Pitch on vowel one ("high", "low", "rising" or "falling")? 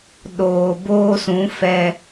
low